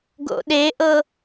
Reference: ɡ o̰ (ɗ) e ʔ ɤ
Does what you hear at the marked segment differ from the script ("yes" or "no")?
no